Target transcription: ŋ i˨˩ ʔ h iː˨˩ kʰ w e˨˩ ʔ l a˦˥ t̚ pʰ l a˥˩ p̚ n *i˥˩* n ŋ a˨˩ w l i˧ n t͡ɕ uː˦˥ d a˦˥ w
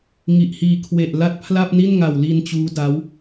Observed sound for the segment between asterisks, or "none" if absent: i˥˩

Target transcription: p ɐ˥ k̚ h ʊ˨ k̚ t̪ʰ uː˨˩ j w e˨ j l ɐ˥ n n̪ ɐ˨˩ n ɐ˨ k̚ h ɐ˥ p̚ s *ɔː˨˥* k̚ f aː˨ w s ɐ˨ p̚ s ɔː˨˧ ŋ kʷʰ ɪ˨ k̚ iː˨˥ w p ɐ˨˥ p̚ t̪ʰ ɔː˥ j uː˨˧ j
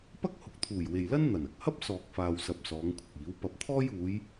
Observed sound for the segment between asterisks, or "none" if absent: ɔː˨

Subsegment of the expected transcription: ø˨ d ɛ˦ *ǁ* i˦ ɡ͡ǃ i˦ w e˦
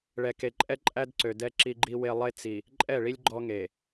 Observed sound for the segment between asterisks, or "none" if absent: ǁ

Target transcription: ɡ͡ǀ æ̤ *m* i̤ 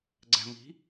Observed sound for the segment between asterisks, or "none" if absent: m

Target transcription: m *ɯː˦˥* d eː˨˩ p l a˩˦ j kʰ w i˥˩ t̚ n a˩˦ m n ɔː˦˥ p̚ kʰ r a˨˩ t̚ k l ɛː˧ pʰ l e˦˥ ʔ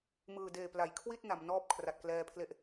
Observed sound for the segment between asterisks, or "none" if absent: ɯː˨˩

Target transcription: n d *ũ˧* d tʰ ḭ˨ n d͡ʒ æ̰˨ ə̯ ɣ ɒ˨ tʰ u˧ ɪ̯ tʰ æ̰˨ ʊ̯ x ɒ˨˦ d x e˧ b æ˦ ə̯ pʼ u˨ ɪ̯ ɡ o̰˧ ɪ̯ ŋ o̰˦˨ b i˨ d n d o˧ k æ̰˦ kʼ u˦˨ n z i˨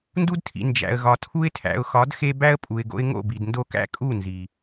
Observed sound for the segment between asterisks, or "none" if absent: u˧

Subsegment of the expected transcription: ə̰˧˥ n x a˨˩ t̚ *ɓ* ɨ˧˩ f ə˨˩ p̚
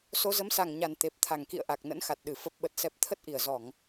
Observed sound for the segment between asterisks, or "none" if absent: ɗ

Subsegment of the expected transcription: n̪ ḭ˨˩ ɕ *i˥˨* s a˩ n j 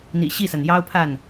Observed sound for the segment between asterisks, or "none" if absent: i˥˨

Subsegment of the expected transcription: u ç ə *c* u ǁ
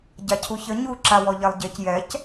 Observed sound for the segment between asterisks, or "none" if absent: ɲ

